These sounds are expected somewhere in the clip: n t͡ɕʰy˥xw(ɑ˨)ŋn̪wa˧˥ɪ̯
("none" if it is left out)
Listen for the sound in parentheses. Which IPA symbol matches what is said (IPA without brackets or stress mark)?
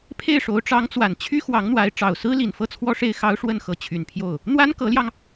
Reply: ɑ˧˥